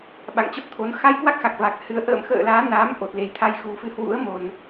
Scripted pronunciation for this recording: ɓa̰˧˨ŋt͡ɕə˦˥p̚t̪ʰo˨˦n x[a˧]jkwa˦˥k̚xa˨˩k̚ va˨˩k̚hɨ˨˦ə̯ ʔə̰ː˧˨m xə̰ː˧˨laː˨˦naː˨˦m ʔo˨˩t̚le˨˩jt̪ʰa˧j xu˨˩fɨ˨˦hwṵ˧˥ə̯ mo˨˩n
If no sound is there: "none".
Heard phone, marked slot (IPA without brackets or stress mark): a˧